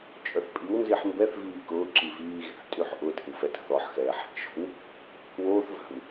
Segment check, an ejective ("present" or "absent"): present